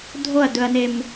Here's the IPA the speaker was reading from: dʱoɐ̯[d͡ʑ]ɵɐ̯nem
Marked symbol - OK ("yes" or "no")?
no